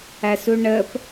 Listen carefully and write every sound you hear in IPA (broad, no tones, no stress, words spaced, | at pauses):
æsuɳəp